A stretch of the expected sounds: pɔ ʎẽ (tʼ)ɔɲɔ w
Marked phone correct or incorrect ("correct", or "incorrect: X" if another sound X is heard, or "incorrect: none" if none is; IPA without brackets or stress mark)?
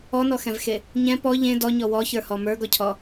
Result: incorrect: d